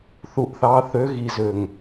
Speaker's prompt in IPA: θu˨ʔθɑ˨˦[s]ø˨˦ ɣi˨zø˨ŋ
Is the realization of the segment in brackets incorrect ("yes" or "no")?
yes